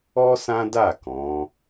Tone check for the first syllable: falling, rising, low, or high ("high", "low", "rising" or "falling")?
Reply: high